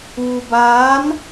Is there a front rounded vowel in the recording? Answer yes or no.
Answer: no